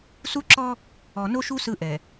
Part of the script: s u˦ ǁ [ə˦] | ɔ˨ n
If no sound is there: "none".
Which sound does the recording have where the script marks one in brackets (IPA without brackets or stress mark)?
ɔ˦